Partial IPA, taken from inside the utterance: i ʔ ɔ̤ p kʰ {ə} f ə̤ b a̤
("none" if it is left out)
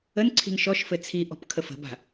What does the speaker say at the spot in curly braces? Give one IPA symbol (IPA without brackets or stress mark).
ə